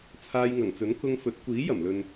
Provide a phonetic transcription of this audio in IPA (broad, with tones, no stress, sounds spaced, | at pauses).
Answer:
t͡sʰ aː˧ j ŋ ɐ˨˩ ŋ t͡s ɵ˨˥ n k ʊ˧ ŋ f ɵ˨˥ t̚ kʷ iː˨˥ j ɐ˨˩ m l ɵ˨ n